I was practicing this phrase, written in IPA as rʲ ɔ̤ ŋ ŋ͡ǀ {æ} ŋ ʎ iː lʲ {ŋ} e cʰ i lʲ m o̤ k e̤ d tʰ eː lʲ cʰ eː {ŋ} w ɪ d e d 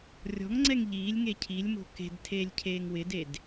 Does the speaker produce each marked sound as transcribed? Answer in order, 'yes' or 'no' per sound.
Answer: no, yes, yes

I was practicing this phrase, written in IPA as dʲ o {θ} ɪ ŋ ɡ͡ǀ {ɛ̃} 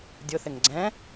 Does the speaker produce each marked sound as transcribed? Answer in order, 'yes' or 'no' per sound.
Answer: yes, yes

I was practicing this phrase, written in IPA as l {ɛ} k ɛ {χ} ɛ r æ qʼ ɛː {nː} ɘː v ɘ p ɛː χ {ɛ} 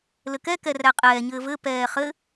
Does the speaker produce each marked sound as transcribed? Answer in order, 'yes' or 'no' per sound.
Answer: no, no, no, no

